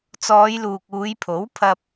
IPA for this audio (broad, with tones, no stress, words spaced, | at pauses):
t͡sɔː˨˧jluː˨k̚ uː˨˧jpʰo˨˥w pʰɐ˧p̚